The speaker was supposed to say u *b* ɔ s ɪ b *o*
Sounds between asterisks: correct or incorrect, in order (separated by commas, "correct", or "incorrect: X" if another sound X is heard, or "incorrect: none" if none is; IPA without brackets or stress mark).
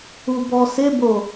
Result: correct, correct